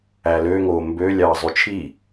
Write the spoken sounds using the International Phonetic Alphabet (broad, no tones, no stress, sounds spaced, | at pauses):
æ l ø ŋ oː m b ø lʲ ɑː zˤ y t͡ʃʰ i